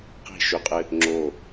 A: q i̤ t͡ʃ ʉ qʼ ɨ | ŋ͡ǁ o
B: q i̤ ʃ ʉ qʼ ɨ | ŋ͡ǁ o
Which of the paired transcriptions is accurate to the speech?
B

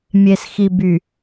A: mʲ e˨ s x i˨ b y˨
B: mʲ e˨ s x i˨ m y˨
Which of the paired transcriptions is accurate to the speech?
A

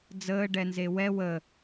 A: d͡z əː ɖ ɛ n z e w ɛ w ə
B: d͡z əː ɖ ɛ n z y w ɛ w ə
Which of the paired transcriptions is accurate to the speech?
A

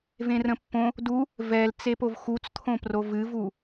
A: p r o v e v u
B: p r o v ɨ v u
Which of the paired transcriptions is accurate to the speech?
B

